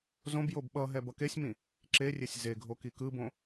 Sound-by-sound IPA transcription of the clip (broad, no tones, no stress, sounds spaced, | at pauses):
z õ b j o b ɓ ʌ ɦ ɛ b ʌ k e sʲ m ĩ | ǁ e rʲ e sʲ z e ɡʱ o k i k ɯ b õ